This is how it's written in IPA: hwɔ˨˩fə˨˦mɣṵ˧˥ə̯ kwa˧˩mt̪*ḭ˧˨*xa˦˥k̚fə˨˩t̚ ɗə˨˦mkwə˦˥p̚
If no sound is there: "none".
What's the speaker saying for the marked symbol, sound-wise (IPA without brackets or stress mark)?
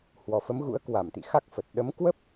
ḭ˧˨